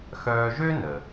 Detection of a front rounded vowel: present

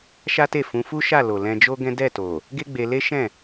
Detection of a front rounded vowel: absent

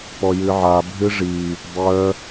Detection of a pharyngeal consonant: present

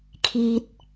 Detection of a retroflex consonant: absent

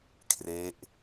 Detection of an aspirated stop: present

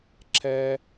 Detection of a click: present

